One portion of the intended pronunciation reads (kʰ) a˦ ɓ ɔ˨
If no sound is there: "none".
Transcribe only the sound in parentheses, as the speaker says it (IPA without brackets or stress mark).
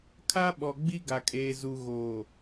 kʰ